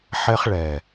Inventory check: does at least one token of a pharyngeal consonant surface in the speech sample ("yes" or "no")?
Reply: yes